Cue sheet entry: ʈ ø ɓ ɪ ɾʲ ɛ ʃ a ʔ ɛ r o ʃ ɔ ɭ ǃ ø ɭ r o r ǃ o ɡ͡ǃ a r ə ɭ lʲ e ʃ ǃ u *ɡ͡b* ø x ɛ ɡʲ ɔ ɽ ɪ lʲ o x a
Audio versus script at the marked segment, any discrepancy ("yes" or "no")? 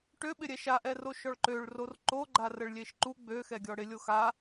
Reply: no